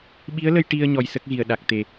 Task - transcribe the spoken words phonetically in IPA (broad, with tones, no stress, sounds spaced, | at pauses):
ɓ i˧˥ ə̯ l ə˧ j ʈ i˧ ə̯ ɲ ɔ˧ j s ə˦˥ k̚ ɣ i˨˩ ə̯ ɗ a˨˩ k̚ t̪ e˨˩